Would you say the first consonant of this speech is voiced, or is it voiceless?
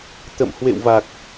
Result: voiceless